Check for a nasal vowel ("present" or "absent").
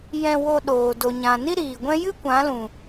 present